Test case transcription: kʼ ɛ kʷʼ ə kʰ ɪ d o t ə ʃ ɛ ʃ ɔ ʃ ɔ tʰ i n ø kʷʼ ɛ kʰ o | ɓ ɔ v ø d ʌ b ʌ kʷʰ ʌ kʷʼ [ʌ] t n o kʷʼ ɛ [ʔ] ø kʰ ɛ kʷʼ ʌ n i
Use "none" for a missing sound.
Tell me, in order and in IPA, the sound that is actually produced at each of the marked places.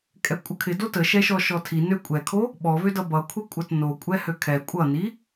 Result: ʌ, h

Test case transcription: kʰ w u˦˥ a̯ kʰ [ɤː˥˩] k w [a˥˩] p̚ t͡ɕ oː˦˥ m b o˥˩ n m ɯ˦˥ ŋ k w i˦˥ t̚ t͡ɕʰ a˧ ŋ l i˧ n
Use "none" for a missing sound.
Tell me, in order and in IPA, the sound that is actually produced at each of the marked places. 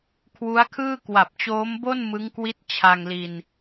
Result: ɯː˥˩, a˨˩

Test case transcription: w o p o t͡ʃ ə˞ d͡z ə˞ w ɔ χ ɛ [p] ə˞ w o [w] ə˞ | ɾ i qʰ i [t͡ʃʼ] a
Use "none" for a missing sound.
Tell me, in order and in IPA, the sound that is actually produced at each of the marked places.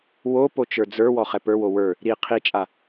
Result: p, w, t͡ʃʼ

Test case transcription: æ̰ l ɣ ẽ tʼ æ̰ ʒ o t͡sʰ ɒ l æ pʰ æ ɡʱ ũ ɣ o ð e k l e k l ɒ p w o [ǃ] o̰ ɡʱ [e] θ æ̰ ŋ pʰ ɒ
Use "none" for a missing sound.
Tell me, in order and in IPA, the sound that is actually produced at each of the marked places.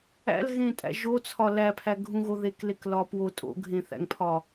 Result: tʼ, ẽ

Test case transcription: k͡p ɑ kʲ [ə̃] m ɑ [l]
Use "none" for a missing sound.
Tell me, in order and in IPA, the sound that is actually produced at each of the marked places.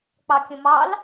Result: ə̃, l

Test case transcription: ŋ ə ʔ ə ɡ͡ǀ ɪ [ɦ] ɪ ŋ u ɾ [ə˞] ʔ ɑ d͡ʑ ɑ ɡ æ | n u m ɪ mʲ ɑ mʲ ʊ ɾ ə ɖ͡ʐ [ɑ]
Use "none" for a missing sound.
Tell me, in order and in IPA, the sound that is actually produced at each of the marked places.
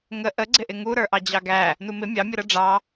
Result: ʔ, ə˞, ɑ

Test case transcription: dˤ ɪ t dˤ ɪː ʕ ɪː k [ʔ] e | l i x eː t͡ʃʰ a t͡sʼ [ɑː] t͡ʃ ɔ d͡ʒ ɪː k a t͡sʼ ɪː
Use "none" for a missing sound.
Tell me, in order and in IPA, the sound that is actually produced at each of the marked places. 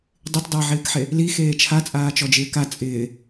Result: ħ, aː

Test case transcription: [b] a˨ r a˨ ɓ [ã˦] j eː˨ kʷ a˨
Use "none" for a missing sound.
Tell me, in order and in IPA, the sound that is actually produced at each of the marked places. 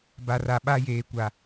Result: b, a˦

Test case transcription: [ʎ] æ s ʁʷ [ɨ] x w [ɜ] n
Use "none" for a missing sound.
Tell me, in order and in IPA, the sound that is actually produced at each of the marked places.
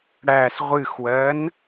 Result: ɽ, ɨ, ɜ

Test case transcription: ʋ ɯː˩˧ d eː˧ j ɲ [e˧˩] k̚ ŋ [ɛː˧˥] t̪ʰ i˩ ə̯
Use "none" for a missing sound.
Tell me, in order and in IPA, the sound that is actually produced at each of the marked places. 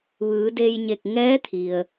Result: e˧˩, ɛː˧˥

